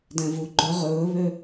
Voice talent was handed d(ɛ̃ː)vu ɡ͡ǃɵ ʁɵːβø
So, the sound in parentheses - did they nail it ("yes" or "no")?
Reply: no